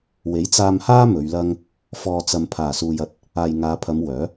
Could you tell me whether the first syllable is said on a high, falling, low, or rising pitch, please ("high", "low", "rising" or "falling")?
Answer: rising